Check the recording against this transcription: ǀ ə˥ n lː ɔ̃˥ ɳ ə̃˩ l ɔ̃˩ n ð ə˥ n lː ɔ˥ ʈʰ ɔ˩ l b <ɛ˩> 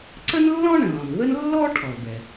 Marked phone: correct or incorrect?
correct